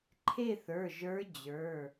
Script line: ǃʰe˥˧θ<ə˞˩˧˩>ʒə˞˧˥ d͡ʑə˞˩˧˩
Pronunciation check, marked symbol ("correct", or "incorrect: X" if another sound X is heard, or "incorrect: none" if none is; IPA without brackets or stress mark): correct